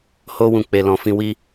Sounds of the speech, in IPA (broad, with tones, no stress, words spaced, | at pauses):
ho˦wũ˧ k͡pe˨lɔ̃˨ fĩ˧wi˦